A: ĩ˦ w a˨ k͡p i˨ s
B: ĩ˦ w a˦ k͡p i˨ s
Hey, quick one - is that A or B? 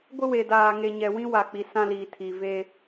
A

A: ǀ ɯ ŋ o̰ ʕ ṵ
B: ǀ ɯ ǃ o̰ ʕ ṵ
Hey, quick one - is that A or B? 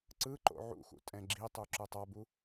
B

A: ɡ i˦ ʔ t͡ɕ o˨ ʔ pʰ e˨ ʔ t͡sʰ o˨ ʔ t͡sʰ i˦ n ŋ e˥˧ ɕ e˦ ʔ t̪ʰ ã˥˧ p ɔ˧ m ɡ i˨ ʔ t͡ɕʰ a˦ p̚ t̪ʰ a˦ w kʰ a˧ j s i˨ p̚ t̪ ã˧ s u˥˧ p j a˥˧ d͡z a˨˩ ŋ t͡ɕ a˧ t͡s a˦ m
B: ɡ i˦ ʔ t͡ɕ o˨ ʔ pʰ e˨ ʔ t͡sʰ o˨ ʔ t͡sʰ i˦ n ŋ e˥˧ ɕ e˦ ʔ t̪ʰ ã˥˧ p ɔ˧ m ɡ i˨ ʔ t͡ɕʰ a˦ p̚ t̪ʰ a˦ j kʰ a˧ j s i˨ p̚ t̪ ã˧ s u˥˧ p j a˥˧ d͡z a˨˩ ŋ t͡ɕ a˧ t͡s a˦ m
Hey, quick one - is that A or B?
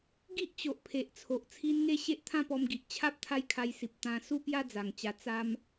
B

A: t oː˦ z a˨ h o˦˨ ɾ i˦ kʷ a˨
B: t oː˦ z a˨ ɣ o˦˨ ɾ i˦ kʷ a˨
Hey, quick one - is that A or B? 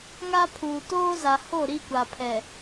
A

